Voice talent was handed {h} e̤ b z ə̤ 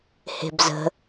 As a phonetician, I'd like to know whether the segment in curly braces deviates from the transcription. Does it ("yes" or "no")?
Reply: no